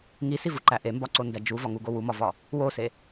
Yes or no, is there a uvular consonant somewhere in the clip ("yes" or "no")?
no